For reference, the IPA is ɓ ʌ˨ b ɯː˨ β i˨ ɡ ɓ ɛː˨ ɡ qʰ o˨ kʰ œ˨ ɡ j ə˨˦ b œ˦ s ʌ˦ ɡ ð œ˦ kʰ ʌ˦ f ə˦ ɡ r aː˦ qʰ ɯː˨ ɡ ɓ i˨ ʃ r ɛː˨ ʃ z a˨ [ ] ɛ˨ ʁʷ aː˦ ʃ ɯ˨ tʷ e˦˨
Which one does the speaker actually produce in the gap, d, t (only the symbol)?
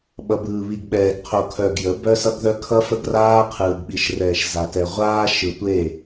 t